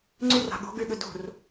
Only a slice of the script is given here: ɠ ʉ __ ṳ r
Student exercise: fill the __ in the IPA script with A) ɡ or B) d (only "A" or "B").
B